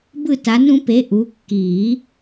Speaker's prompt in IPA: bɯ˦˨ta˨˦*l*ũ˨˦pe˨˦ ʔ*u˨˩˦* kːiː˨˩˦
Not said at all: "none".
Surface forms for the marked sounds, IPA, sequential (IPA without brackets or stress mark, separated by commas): n, u˨˦